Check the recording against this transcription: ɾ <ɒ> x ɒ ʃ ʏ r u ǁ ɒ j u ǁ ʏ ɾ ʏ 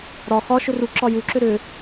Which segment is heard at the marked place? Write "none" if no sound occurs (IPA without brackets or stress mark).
ɒ